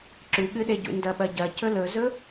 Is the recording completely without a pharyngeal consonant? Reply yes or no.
yes